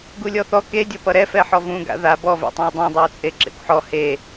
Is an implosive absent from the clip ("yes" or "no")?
yes